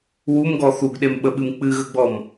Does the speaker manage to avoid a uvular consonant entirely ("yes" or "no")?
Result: yes